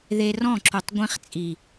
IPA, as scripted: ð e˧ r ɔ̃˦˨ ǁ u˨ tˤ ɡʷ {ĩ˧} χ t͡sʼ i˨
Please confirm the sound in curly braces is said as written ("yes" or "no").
yes